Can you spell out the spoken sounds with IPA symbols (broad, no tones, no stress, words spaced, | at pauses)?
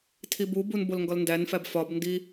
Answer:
tʰibubun bolŋɡɒlndænfæb fɒbndi